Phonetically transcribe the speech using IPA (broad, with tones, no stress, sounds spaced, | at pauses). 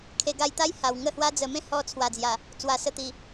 kʰ e˧ ɡ a˧ j t̪ a˦ j h a˨˩ w ŋ ə˦ h w a˦ d͡z ə˧ m ẽ˦ h ɔ˧ t͡sʰ w a˨˩ d͡z j a˨˩ | t͡s w a˨˩ s ə˧ t̪ i˨˩